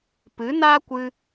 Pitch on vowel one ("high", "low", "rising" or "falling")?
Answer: rising